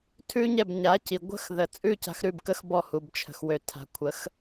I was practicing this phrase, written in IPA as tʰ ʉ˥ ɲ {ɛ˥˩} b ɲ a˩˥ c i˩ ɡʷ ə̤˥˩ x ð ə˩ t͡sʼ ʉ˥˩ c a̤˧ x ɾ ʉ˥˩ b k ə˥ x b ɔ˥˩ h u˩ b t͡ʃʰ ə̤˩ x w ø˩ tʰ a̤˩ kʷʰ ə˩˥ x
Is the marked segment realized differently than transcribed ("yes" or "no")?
no